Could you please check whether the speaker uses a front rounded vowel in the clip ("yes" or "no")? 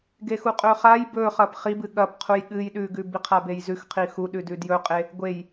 no